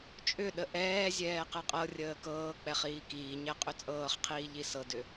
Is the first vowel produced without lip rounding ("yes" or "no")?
no